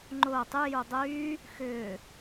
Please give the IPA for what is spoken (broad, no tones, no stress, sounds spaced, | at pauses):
ŋ͡ǃ ʊː tˤ y j u dˤ yː | x ʏː